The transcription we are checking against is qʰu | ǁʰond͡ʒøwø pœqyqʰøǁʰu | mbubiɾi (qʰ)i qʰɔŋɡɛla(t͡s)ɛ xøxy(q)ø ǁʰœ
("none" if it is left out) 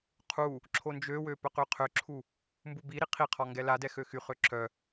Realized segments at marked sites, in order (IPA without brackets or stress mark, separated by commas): qʰ, d, χ